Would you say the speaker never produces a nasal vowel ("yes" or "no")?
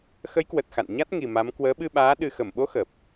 yes